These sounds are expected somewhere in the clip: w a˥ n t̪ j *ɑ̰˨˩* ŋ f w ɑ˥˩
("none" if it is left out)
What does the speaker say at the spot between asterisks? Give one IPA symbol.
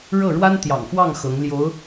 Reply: ɑ̰˨˩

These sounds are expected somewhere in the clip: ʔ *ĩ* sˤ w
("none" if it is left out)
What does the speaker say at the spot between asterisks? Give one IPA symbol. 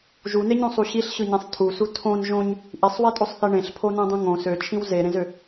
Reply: i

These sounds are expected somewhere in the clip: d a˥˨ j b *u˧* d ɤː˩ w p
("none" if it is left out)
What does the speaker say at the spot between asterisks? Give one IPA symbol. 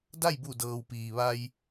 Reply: u˧˩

